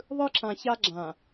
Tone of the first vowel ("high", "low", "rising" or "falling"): high